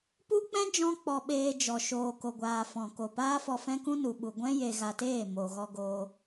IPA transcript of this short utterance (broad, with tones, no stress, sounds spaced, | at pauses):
p u˦ k͡p ɛ̃˦ d͡ʒ ɔ̃˦ k͡p ɔ˧ ɓ eː˧ d͡ʒ ɔ˨ ʃ oː˨ k o˨ ɡʷ aː˨ f ɔ̃˨ k o˨ p aː˦ f ɔ˧ f ɛ̃˦ k ũ˦ n u˨ ɓ u˨ ɡʷ ɛ̃˦ j e˧ ɣ a˧ t eː˦˨ m o˨ ɣ ɔ˧ ɡ oː˧